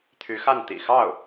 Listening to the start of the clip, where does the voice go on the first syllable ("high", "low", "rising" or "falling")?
rising